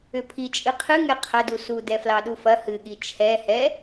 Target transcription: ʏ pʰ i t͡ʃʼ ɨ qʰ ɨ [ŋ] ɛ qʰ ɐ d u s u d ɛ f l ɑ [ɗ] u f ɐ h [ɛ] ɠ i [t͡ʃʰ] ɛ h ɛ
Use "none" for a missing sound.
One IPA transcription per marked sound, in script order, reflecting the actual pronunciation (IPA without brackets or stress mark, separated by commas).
ŋ, ɗ, ɨ, t͡ʃʰ